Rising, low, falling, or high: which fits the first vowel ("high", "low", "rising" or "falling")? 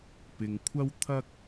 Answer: low